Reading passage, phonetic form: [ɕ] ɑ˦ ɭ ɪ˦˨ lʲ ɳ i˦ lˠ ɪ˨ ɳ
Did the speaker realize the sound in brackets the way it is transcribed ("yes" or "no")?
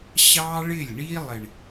yes